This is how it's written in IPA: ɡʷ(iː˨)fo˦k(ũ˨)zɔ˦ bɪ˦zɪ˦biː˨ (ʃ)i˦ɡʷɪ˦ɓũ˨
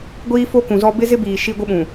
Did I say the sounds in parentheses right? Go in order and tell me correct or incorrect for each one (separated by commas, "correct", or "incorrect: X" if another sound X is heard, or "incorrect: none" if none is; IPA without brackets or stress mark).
incorrect: iː˦, correct, correct